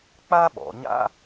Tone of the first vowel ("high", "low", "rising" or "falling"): high